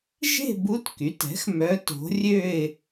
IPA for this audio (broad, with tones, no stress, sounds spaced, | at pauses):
ʒ e̤˥˧ b u˧˥ t k y˩˥ t ɛ̤˩˥ x m œ˧˥ t o̤˧˥ rʲ ø˥˧ ɪ̯